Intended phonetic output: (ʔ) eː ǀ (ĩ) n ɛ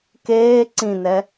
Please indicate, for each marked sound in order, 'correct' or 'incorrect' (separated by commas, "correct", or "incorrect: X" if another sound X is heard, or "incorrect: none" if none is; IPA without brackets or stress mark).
incorrect: k, correct